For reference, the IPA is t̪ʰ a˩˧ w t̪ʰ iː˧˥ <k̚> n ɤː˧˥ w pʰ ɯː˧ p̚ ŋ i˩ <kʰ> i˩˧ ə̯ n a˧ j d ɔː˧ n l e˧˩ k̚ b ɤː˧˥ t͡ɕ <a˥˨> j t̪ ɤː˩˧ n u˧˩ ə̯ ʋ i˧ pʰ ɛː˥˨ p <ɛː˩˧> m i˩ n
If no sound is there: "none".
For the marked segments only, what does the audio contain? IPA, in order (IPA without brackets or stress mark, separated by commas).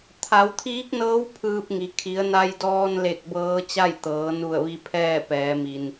k̚, kʰ, a˥˨, ɛː˩˧